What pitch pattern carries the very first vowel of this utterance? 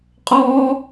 high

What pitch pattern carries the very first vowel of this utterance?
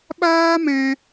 high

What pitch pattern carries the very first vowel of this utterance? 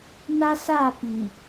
high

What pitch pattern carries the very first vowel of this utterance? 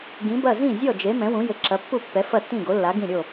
rising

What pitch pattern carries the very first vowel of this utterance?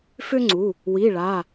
high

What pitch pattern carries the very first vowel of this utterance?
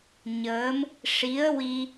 rising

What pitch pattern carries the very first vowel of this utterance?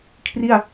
falling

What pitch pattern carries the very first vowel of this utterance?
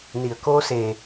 low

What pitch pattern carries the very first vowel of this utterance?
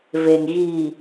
low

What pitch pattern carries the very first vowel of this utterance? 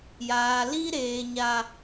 low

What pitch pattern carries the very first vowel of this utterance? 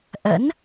rising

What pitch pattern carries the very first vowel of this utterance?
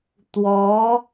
rising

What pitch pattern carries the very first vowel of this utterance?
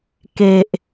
low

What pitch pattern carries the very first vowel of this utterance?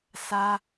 high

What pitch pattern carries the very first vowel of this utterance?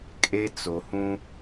high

